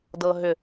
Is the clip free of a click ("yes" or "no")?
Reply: yes